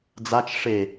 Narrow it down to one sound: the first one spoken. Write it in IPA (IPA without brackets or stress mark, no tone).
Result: d͡z